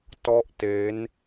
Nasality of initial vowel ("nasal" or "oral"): oral